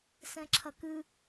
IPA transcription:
s ɛ̃ ǁʰ ɐ k ɨ

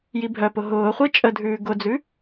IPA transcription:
j i bʱ œ p ʊ ɦ ʊː χʷ e t͡ʃʼ ə dʱ ʉː ɡ ʊ d͡z ʉ

